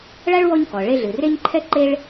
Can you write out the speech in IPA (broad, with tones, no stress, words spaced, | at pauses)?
ɭa˥ɭwɔ˦ɲkɔ˩ ɭe˦ɮɨ˩re˥ɲ ǃʰɛ˥ ǃe˦ɭ